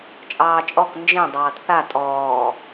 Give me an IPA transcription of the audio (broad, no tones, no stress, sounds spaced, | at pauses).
t͡ʃʼ ɑː t͡ʃʼ ɔ k n d͡ʒ ẽ dˤ ɑː t θ a tʼ ɔː